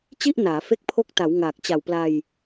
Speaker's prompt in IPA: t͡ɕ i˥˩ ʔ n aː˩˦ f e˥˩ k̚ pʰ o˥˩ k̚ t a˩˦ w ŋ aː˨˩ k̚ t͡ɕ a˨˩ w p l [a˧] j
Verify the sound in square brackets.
correct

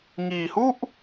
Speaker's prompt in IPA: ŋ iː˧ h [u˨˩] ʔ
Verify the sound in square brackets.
incorrect: u˥˩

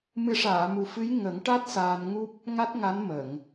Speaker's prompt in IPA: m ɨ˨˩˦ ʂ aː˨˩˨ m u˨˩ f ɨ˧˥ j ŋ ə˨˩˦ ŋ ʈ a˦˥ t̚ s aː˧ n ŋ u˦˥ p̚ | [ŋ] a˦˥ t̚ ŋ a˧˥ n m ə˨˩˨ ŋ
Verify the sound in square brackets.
correct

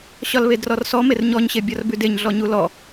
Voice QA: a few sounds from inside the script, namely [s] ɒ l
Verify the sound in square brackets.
incorrect: ɕ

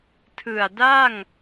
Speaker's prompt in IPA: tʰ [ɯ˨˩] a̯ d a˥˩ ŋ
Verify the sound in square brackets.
correct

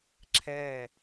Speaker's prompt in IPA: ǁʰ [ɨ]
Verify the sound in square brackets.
incorrect: ɛ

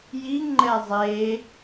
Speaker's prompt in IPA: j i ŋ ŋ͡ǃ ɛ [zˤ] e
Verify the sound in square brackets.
correct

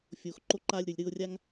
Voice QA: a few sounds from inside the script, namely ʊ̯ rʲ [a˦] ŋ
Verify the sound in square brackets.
correct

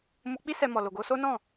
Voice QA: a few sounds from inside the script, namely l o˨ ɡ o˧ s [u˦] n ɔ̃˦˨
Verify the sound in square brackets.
incorrect: o˦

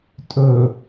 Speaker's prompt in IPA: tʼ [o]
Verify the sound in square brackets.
incorrect: ɵ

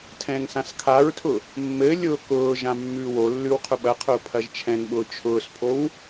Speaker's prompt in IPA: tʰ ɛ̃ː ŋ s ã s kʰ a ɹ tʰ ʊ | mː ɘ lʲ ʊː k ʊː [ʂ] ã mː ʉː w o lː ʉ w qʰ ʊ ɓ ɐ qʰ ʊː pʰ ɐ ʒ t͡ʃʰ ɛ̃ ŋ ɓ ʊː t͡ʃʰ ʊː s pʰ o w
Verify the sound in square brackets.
incorrect: ʒ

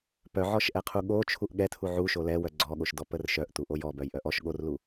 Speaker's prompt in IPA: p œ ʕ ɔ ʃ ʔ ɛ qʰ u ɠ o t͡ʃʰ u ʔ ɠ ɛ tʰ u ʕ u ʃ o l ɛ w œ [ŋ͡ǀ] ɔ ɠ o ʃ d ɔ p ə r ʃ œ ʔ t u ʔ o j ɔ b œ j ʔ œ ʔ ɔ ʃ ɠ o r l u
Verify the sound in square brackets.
incorrect: ɡ͡ǀ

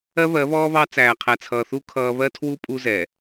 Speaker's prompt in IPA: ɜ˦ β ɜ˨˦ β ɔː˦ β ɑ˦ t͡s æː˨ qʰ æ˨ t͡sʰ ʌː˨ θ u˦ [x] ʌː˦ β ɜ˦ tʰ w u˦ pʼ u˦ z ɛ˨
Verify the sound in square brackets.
incorrect: kʰ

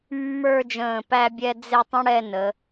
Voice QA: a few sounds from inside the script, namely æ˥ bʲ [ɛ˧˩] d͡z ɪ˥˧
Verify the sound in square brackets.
incorrect: ɛ˥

